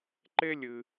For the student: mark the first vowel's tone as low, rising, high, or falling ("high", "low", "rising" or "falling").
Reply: high